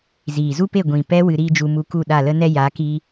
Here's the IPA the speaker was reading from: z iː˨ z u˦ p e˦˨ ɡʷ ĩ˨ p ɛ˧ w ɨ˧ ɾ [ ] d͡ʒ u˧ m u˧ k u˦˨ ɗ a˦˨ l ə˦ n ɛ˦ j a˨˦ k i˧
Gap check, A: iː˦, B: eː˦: A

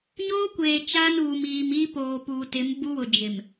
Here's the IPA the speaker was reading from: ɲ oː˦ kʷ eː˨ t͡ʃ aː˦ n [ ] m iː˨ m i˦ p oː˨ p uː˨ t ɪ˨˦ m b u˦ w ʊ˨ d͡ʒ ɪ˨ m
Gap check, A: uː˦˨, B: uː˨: B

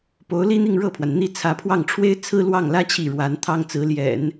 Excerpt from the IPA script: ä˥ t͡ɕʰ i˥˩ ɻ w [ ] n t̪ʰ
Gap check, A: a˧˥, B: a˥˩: A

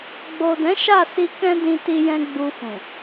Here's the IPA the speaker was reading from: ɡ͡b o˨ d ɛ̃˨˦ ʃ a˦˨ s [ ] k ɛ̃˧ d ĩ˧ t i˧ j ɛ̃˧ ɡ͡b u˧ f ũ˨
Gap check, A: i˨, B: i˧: B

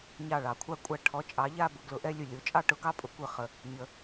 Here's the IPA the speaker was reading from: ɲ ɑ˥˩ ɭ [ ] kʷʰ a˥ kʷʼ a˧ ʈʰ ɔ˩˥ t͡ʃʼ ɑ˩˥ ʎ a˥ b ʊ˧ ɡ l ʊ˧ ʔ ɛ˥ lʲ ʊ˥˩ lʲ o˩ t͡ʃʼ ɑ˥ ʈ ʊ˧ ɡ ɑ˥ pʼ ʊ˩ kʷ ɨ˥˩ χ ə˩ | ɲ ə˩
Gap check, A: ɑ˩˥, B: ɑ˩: B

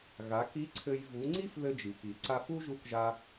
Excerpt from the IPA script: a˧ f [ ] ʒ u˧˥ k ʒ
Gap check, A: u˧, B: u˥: B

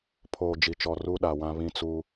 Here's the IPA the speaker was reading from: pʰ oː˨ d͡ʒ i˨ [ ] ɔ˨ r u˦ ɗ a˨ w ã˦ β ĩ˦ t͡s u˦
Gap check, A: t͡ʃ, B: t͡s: A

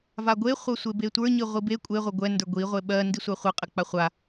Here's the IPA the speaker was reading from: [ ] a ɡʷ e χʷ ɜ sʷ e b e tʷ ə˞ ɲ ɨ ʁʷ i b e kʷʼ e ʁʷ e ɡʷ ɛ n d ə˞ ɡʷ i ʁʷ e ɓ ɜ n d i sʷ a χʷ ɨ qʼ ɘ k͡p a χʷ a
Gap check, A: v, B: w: A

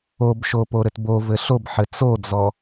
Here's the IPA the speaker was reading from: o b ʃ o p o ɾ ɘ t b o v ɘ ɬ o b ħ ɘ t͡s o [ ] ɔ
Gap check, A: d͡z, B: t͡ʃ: A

